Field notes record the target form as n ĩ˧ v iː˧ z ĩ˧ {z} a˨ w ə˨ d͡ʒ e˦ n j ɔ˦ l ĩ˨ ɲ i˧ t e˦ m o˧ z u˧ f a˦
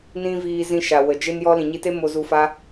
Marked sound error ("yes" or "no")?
yes